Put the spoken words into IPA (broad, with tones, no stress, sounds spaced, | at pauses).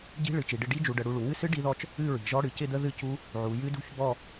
ɟ i̤˦˥ ɭ ɨ˩˧ t͡ʃ i˩˧ ɖ ɪ˥˧ ɖ i˦˥ d͡ʒ u˩˧ ɖ ə˩˧ ɽ u˦˥ ɭ u˩˧ ŋ ɨ˥˧ s ɨ˦˥ ɖ i˦˥ ð ɔ˥˧ t͡ʃ | ɨ˥˧ ɹ i̤˩˧ ʒ ɔ˦˥ ɽ ɨ˩˧ c ɪ˥˧ d̪ ə˦˥ ð ɨ˦˥ c u˦˥ | ʕ u˩˧ j ɨ˦˥ d ṳ˥˧ ç b ɔ˥˧